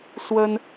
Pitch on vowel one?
high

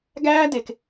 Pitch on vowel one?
high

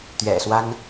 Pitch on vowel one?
low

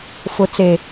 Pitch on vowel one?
low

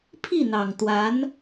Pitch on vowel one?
falling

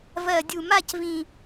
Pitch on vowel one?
low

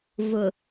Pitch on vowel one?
low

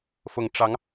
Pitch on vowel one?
low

